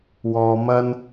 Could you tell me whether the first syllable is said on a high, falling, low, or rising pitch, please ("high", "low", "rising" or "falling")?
low